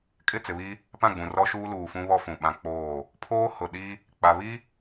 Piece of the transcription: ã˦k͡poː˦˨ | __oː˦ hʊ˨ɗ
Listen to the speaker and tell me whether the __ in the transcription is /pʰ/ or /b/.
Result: pʰ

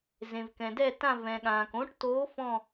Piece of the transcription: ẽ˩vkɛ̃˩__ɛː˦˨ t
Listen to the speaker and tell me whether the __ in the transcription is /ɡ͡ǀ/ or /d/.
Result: d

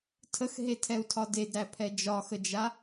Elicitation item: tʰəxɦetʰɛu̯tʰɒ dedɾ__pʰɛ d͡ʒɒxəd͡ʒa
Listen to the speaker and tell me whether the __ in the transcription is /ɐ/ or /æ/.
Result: æ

